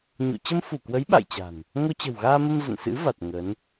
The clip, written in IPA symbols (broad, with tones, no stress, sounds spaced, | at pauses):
ɲ ṵ˧˨ t͡ɕ ə˧ m f u˧˩ k w ə˨˦ j ɓ a̰˧˨ j t͡ɕ a̤˨˩ n | ŋ o˧ t͡ɕ ə̤˨˩ w ɣ aː˧ m ə˧ m z ə̰˧˨ n s ɨ̰˧˥ v a˨˩ t̚ ŋ ə˨˦ n